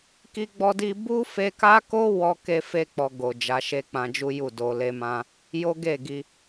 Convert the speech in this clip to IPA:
k i˦ ɡ͡b ɔ˦ d i˦ b u˦ f e˧ k a˦ k o˦ w ɔ˦ k e˦ f e˦ k͡p ɔ˧ ɡ o˨ d͡ʒ a˨˦ ʃ e˦ k͡p ã˧ d͡ʒ u˦ j u˦˨ d o˧ l e˧ m ã˧ | j o˦ ɡ e˦˨ ɡ i˧

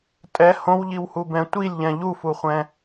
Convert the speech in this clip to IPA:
tʼ ɛ h õ w ʎ i w h u b ɛ̃ tʷ i lʲ ʎ ɛ̃ ʎ u f u χʷ ɛ̃

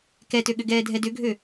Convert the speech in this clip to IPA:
k ɛ t ø ɠ ʏ ɡ ɛː dʱ ɛ d ʏ ɡʱ ø

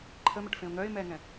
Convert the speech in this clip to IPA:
ǃʰ ə m ə ʈ f ẽ ʊ̯ ŋ œ ɪ̯ m ɛː ŋ ɛ̃

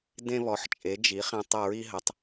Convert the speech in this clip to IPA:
d ẽ˧ β ɔ˩˧ ħ t͡ʃʼ e˩˧ d͡ʒ i˩˧ χ ẽ˧ tˤ ə˧˩ ɹ i˧ ɦ ə˩˧ tˤ

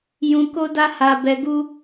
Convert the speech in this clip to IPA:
j ũ˧ k o˦ d a˦ h a˧ b ɛ˧ ɡ u˦

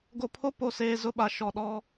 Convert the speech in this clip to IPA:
ɡ o˨ pʰ o˦ p o˨ s eː˨ z ʊ˦ ɓ a˨ ʃ ɔ˨ ɗ ɔ˦

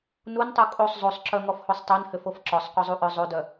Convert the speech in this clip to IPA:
n u n tˤ u kʼ o sˤ zˤ o sˤ ǁ œ ŋ ɔ f h o sˤ tˤ œ n h ʏ f o f ǁ ɔ sˤ qʷ œ zˤ u ʔ œ zˤ o d œ

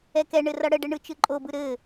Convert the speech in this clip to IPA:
ɛ k ɛ ɳ ɘ r ʌ ɽ ə ɖ ɘ ɳ ɯ t͡ʃ ɯ ǃʼ o b ɯ ɾ ɘ

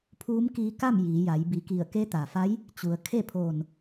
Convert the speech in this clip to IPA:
pʰ uː˧˥ m k iː˧ k a˥˨ m j iː˩˧ j a˩˧ j b i˩˧ k i˧˩ ə̯ k e˧˥ t̪ a˩ f a˧˥ j | t͡ɕ u˩ ə̯ kʰ e˥˨ pʰ oː˧˩ n

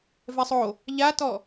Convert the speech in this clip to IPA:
v ɛ sˤ o | ʎ a t ɔ

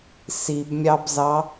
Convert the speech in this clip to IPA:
s i b mʲ ɑ b z ɑ

